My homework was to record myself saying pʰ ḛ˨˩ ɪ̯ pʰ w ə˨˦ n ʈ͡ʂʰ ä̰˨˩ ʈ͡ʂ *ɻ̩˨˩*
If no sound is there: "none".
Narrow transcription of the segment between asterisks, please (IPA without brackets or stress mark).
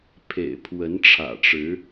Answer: ɻ̩˨˦